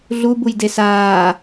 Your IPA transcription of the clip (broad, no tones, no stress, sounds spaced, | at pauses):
ɮ u b u j d e s aː